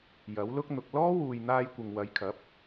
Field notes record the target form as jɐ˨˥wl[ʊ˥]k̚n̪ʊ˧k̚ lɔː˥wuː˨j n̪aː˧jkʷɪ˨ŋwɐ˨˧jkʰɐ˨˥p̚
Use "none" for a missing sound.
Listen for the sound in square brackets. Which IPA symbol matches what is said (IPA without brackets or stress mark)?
ʊ˥